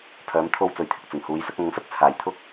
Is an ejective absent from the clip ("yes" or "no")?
yes